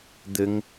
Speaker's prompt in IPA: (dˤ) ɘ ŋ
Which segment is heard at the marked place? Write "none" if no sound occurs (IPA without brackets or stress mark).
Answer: d̪